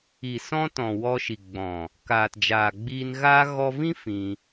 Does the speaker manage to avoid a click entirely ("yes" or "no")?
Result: yes